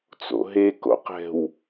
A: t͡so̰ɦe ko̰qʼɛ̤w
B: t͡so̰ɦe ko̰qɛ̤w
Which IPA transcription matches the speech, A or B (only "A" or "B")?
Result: B